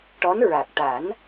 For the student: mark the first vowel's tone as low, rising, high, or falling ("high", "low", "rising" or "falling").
rising